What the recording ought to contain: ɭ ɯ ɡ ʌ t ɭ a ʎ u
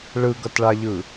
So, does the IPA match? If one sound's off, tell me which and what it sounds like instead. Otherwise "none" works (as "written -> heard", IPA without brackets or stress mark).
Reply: u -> ɯ